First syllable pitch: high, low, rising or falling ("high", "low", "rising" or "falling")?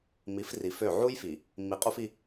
rising